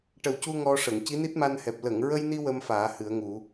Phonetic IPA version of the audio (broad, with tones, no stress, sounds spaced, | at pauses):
ʈ ə˨˩ w c u˧ ŋ ɔ˧ ʂ ə˨˩˨ ŋ c i˧˥ n i˦˥ t̚ m a˧ n h ɛ˨˩ p̚ l ə˨˩˨ ŋ ɹ ə˧ j n i˧ w ə˧ m f aː˨˩˦ h ɨ˨˩˦ ə̯ ŋ u˨˩˦